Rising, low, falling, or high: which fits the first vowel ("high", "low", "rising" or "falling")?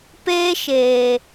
high